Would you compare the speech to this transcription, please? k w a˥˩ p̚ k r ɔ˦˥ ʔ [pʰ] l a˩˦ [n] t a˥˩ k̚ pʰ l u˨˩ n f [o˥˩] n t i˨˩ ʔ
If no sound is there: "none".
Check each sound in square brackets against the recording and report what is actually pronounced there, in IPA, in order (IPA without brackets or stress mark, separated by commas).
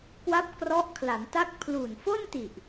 kʰ, n, o˥˩